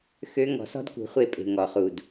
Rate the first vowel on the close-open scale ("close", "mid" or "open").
mid